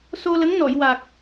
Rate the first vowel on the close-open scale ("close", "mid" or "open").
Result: mid